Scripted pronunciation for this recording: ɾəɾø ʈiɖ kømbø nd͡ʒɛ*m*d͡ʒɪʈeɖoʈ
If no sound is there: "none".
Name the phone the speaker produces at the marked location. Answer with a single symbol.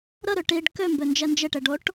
n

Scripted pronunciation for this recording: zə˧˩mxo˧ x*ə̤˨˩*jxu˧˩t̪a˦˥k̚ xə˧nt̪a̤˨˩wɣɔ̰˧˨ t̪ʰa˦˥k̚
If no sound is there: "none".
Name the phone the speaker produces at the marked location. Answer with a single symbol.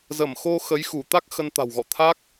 ə˨˦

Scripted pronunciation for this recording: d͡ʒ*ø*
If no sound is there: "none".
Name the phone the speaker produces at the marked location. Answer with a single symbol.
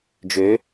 ø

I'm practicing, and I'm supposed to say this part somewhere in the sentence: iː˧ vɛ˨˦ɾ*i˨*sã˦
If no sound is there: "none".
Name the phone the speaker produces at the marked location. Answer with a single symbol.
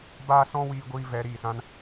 iː˨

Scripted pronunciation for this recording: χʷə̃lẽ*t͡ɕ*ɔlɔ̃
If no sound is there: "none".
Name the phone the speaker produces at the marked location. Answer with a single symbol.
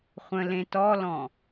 t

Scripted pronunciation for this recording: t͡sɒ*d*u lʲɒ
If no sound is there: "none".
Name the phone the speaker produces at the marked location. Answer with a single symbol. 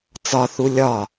θ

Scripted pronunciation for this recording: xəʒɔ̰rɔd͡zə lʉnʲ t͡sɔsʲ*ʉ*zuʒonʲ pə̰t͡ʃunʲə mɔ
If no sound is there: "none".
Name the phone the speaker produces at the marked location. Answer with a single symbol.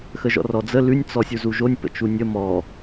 u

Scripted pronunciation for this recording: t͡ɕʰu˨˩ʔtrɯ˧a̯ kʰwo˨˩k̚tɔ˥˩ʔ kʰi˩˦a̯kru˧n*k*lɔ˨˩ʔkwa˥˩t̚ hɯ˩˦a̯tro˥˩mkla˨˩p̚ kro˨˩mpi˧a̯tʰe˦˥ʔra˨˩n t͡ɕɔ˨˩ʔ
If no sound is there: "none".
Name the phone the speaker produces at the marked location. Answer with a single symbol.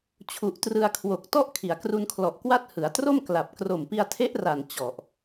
kʰ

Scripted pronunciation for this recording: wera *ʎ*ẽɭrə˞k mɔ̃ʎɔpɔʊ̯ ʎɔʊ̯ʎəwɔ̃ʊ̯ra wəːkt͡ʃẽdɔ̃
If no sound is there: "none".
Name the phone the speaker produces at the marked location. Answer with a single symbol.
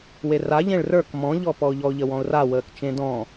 ʎ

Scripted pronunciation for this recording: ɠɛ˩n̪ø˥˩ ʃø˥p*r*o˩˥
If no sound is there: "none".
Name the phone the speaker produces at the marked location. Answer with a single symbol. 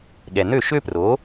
r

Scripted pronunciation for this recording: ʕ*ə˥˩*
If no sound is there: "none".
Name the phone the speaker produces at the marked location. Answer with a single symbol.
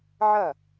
ɐ˥˩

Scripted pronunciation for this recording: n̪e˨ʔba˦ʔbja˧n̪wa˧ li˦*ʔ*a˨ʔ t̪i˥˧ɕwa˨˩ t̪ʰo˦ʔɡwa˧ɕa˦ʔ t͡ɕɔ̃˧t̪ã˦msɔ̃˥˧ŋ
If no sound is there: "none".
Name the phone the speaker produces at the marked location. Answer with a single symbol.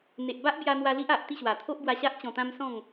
ʔ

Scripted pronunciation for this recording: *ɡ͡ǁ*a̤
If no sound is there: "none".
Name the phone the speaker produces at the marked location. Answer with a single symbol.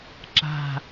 ǁ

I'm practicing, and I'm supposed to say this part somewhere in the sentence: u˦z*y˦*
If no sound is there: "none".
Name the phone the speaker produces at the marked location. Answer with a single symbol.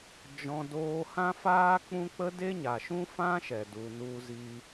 i˦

